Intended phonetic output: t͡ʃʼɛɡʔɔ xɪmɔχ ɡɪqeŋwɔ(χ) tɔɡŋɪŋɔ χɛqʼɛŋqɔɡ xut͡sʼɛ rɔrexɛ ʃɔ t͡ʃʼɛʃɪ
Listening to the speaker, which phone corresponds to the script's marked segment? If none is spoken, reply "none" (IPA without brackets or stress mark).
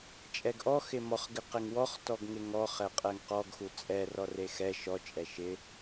χ